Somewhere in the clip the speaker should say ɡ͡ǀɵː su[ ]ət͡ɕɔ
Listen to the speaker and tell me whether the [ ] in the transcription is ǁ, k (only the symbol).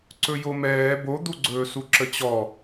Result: ǁ